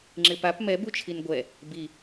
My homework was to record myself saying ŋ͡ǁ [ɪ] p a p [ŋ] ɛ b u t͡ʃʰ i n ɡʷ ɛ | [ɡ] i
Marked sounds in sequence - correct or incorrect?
correct, incorrect, incorrect

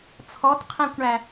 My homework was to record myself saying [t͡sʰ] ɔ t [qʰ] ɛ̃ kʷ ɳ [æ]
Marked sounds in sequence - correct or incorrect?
correct, correct, correct

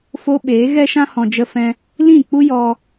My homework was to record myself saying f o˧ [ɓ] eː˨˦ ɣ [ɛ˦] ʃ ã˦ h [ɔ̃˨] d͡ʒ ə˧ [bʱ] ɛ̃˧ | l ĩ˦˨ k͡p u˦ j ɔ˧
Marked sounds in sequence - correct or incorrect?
correct, correct, correct, incorrect

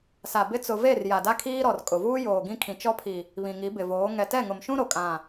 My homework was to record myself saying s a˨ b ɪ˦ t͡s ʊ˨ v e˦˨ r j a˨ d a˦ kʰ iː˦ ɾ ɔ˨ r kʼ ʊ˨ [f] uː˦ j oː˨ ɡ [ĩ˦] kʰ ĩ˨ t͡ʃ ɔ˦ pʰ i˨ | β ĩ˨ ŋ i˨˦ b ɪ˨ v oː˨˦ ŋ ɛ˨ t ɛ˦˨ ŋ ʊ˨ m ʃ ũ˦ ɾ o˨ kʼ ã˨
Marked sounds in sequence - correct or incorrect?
incorrect, correct

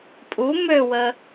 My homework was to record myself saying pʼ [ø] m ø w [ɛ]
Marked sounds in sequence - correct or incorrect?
incorrect, incorrect

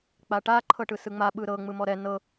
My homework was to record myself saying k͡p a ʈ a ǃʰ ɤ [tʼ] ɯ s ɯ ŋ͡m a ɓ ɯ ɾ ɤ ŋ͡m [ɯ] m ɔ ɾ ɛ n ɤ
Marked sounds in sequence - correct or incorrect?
incorrect, correct

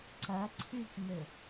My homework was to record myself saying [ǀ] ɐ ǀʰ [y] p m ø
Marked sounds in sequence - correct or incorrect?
correct, correct

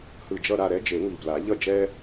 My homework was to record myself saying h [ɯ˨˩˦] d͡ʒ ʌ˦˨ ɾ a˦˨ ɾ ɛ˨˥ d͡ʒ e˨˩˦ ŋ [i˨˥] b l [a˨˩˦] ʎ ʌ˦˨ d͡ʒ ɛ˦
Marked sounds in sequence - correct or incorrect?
incorrect, incorrect, correct

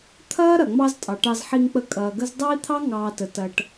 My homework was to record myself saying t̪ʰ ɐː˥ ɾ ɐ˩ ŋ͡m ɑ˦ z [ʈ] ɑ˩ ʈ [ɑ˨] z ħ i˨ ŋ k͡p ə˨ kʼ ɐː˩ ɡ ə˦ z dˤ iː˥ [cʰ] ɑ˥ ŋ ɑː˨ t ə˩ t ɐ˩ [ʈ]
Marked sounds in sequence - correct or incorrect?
incorrect, correct, incorrect, correct

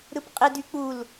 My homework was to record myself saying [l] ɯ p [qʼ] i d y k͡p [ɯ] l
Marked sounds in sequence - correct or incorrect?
incorrect, correct, incorrect

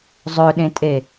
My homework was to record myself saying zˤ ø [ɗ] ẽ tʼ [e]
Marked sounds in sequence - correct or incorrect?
correct, correct

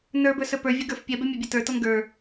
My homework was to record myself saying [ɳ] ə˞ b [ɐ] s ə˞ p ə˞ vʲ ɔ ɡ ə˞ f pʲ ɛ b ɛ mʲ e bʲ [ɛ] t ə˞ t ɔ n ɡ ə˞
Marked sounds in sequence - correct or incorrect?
incorrect, incorrect, incorrect

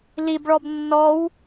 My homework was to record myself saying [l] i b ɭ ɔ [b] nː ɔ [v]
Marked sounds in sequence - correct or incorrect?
correct, correct, incorrect

